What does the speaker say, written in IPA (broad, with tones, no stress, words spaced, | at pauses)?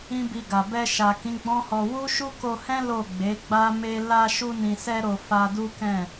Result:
ĩ˦bi˧ɡa˨ bɛ˧ʃa˨kĩ˨˦ ɡ͡bɔ̃˦hɔ˧ wu˦ʃu˦ko˧hɛ̃˦ lo˦˨ɡ͡be˨˦ ɡ͡ba˦me˦ la˧ ʃu˧nĩ˨sɛ˧ɾo˨ fa˧du˦kɛ̃˦˨